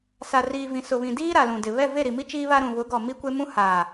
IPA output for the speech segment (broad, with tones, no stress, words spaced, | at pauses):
sa˨riː˨vĩ˨sʊ˨ βĩ˨diː˦ ɾa˨lũ˨dɪ˨ βɛ˦˨ve˦˨ɾi˨mi˦ t͡ʃiː˦βa˦ɾũ˨ βʊ˨˦ɡɔ˨ mi˦kʷe˦mũ˦ haː˨